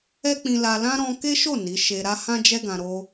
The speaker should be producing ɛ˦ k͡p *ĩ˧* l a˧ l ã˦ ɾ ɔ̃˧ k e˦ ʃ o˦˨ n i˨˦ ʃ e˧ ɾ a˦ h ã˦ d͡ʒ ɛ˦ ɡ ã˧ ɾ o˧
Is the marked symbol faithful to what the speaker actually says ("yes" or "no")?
yes